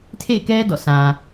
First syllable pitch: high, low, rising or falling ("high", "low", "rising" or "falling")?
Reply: falling